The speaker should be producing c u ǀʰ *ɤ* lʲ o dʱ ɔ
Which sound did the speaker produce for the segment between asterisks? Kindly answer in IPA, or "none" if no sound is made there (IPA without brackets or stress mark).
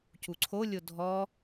o